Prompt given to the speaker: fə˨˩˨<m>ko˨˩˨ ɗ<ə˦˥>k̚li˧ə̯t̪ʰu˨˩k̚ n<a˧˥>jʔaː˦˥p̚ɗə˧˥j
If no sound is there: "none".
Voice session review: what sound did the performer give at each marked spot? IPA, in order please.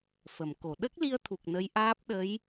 m, ə˦˥, ə˧˥

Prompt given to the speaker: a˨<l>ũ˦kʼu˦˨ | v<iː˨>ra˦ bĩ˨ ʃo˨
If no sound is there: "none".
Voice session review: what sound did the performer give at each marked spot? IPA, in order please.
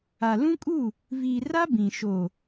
l, iː˨

